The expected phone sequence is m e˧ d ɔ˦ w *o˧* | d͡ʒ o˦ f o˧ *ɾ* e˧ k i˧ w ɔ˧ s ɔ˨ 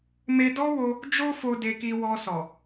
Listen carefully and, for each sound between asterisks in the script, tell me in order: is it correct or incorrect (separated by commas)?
correct, incorrect